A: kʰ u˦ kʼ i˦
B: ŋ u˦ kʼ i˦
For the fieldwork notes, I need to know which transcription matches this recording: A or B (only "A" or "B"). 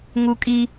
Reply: B